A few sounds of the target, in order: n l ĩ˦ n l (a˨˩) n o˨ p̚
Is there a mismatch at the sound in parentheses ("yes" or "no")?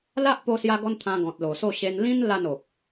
yes